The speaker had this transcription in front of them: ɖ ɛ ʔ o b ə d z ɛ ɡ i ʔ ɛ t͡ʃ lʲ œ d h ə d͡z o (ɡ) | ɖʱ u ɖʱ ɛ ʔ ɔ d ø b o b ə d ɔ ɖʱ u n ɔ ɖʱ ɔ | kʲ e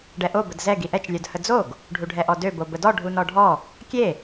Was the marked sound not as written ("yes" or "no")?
no